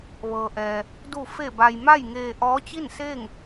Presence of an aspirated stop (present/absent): absent